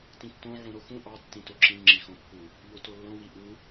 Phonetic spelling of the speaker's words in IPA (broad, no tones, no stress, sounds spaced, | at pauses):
t ĩ tː õ ʕ ũ ɾ o x ũ ʔ ɑ tː ĩ t o ǁ ĩ ŋ͡ǁ i x õ pː u | ʎ o t o lː õ w i ʔ u